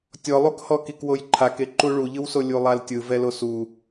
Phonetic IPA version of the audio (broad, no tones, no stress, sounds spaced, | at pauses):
tʲ ɔ lˠ u k h ɔ k i k w o j ǃʰ a k e ǃ u ɭ u ʎ ɯ w s o lʲ u lˠ a l tʲ ɯ v ɛ l o s u